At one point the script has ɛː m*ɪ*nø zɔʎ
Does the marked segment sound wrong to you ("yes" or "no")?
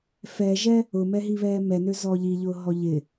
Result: yes